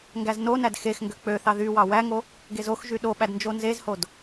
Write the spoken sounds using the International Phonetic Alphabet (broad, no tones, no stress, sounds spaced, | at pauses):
ŋ ɡ æ z n o n æ d x e x ŋ ɡ ø k͡p ø θ ɑ ð y w ɑ w æ ŋ o | ɡ e z o x ʒ y ɗ o ɓ æ d n d͡ʒ o n z e z h o d